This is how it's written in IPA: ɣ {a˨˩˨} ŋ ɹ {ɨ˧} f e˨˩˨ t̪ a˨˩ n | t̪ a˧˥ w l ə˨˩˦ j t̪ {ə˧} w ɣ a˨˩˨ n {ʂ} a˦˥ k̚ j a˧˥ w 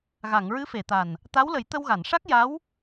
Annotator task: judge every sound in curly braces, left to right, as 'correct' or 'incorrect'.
correct, incorrect, correct, correct

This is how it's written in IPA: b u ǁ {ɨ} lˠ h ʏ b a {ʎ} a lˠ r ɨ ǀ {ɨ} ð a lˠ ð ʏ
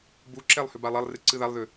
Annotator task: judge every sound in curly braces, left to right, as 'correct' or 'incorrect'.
incorrect, incorrect, correct

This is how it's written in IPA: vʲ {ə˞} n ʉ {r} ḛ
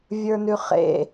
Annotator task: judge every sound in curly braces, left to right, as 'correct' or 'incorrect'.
correct, incorrect

